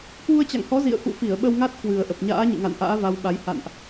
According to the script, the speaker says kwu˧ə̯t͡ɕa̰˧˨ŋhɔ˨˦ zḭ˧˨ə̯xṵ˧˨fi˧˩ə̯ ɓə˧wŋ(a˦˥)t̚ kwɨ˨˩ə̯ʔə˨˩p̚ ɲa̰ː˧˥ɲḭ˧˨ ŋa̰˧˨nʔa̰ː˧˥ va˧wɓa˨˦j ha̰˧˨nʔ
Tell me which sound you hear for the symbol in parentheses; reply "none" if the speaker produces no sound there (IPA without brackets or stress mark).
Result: a˦˥